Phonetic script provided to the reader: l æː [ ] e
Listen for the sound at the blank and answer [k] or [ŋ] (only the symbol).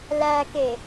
k